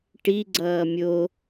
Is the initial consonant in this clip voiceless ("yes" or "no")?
yes